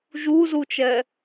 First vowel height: high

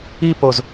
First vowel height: high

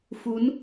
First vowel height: high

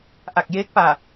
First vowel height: low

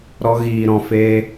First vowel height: mid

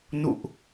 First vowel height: high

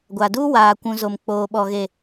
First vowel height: low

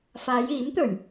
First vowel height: low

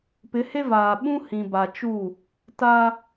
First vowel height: high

